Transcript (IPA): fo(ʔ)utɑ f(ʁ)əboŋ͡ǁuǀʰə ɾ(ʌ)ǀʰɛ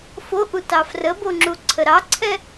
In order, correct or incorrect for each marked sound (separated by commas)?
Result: correct, incorrect, incorrect